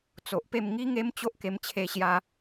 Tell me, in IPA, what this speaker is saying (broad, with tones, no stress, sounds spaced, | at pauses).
t͡s o˨ ʔ p e˥˧ m ŋ i˦ ŋ e˦ m t͡ɕ o˦ ʔ k e˧ m t͡ɕʰ e˧ ɕ j a˧